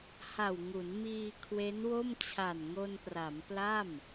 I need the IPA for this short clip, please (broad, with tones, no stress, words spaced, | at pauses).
ha˨˩wŋu˩˦nmiː˧ kʰwe˦˥nwo˥˩m t͡ɕʰa˨˩nŋo˧npra˩˦m pla˥˩m